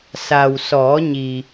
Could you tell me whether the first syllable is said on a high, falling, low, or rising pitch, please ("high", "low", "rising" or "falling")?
low